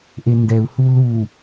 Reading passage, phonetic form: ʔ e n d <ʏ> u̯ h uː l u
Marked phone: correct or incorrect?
incorrect